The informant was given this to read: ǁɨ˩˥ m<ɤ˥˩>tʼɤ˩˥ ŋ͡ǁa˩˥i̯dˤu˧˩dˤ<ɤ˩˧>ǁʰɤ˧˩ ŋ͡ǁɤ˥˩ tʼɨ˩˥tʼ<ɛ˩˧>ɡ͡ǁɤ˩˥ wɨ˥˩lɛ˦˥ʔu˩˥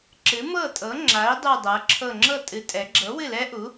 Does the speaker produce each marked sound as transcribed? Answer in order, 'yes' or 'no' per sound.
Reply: yes, yes, yes

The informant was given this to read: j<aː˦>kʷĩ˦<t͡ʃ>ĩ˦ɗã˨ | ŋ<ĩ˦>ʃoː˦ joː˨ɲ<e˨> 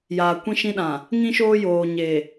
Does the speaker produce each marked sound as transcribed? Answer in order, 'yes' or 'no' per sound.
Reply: no, no, yes, yes

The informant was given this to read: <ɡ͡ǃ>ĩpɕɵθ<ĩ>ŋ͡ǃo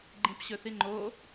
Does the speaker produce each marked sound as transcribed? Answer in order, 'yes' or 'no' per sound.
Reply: yes, no

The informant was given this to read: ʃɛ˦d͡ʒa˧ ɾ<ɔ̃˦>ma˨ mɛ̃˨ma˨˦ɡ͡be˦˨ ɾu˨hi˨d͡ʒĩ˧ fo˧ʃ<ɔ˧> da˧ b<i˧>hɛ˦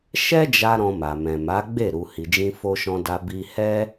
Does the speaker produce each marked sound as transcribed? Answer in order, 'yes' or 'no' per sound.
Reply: no, no, yes

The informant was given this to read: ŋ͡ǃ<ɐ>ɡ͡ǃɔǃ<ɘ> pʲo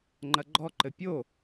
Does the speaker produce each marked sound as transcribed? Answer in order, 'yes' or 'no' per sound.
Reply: yes, yes

